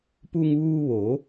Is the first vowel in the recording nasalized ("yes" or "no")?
no